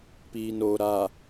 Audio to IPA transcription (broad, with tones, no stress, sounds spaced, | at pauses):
p iː˨ n oː˨ ɾ a˨